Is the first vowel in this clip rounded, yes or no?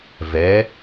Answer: no